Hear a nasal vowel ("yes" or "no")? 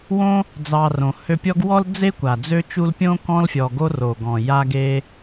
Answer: yes